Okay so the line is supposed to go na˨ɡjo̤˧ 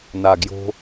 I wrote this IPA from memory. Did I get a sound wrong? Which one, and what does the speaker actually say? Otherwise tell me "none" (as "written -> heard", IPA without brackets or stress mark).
none